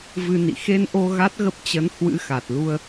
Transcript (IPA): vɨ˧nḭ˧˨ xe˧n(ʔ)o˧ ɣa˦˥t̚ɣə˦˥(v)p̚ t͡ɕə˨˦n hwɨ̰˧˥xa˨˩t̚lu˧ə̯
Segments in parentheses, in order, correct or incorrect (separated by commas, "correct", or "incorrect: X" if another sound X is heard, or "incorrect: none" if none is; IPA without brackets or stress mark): correct, incorrect: none